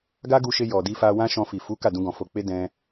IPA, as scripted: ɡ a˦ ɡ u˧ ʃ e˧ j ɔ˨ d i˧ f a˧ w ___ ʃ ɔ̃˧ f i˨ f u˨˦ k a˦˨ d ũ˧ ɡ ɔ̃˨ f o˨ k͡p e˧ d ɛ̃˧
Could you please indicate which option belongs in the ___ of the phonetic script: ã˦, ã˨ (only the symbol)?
ã˦